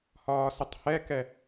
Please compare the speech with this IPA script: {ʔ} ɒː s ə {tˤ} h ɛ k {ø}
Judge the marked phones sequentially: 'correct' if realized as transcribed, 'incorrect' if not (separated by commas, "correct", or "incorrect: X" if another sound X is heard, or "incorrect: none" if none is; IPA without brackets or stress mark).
incorrect: h, correct, incorrect: ɛ